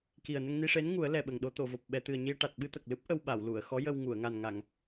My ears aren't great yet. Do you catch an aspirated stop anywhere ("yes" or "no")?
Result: no